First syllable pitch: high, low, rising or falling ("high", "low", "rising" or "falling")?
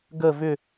falling